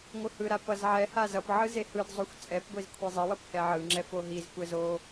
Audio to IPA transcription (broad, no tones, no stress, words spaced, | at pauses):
ŋʷɯhɯɾa pʌzʕɛha zʌpʕɯ zehɯdzˤoxʷ t͡sʼɛpɡʷiz kʷʰezˤiwʌp hɛʕɯŋ͡ǁɛ foɦizkʷɛz o